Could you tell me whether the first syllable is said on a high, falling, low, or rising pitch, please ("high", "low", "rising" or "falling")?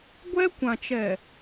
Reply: high